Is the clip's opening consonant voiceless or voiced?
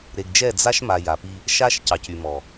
voiced